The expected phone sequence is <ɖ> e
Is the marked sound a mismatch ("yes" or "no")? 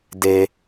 yes